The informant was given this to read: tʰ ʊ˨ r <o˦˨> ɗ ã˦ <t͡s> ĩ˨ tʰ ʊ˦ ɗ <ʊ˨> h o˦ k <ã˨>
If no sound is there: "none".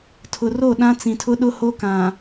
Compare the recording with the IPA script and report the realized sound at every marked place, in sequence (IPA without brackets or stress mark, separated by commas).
o˦˨, t͡s, ʊ˦, ã˨